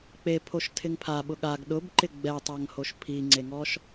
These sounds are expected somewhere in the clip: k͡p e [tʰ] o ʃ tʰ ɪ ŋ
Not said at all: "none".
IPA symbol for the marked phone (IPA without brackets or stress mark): pʰ